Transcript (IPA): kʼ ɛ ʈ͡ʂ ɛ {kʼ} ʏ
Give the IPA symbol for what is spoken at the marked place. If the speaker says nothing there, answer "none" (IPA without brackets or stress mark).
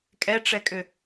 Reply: kʼ